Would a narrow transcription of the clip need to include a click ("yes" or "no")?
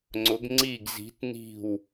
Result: yes